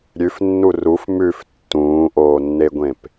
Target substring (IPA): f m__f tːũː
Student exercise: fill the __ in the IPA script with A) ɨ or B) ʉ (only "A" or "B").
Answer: B